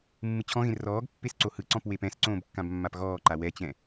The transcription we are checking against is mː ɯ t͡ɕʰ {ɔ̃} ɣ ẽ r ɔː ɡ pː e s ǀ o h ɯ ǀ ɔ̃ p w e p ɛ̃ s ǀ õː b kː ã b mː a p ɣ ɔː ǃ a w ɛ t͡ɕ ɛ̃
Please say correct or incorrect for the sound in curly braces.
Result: correct